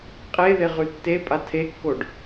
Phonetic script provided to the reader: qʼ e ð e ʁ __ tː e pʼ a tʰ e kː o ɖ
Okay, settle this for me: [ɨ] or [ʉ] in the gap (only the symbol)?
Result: ʉ